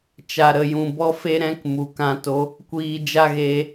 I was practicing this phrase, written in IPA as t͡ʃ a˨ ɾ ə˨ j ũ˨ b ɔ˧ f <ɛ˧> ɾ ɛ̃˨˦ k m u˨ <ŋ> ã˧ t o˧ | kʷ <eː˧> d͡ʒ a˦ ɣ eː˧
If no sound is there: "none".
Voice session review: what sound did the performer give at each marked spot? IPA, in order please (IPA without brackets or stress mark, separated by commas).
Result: e˧, k, iː˧